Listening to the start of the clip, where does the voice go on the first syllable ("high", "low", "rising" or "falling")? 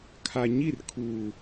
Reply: low